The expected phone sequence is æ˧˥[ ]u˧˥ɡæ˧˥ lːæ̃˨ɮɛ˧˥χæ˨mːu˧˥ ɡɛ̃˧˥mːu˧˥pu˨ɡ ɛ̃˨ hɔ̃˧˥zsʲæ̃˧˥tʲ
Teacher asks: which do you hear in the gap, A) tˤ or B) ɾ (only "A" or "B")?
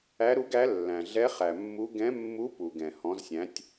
B